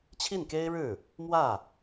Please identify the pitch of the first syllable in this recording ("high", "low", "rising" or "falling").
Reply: falling